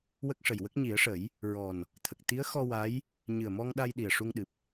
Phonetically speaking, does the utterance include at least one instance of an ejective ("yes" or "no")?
no